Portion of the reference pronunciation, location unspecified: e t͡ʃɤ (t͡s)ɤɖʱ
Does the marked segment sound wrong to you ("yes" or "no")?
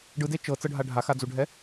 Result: no